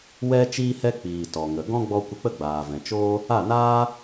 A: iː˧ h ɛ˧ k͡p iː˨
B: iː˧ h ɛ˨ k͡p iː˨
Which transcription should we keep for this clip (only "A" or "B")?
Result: A